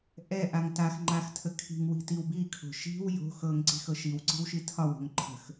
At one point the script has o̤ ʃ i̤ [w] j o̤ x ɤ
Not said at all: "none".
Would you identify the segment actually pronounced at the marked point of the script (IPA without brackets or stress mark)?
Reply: w